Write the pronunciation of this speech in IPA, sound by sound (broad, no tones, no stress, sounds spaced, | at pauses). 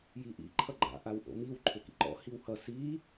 j i ʔ ḭ ǃʰ ʌ ɡ͡ǃ a̰ ʔ a w ʔ o̰ m i w ǃʰ ʏ k ḭ ǃ ɔ̰ h i w h ʌ s i